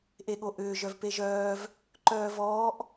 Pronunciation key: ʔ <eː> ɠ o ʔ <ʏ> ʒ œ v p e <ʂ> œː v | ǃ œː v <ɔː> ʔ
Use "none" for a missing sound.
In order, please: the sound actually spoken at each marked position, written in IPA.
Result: e, ʏː, ʒ, ɔː

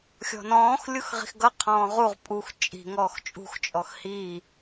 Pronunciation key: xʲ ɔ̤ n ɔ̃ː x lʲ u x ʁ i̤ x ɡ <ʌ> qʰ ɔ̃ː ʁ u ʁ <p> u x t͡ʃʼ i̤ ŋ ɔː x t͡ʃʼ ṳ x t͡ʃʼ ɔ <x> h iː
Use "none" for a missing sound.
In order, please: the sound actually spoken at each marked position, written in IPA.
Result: ʌ, pʼ, x

